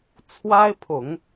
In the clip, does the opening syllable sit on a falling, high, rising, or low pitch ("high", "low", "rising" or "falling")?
high